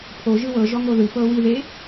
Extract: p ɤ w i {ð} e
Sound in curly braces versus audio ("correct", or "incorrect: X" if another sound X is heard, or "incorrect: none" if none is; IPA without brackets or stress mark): correct